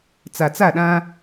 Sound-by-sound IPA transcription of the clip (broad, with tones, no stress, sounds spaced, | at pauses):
t͡s a˨ t͡s a˦˨ ɗ ã˦